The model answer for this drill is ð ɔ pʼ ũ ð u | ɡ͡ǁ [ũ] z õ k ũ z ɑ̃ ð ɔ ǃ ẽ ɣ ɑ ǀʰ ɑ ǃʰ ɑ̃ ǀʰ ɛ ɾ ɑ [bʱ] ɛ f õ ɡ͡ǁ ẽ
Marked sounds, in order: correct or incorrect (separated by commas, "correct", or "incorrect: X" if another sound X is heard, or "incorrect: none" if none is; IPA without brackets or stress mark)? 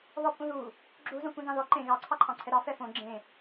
incorrect: u, incorrect: f